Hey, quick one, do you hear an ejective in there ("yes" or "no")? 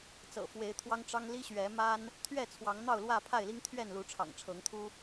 no